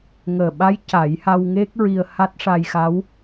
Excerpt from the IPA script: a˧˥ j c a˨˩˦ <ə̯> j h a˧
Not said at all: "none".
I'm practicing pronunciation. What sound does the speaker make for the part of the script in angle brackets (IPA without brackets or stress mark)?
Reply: none